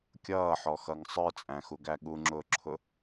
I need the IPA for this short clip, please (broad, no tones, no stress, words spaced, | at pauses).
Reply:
kʲʌːħɔxʌŋ sˤə˞t͡sʼæ̃xuɡæ ɠuŋ͡ǁʊːǁʰʊ